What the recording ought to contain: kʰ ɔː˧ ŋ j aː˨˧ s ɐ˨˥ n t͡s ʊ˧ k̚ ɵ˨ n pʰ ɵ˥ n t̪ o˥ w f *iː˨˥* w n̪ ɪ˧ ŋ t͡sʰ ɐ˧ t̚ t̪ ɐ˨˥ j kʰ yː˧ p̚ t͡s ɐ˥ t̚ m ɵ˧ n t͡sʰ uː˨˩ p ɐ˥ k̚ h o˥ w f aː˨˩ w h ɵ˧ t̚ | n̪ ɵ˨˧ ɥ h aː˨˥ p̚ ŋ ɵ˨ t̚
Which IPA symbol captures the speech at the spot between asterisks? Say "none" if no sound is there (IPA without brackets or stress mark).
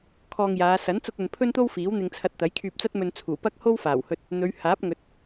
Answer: iː˨˥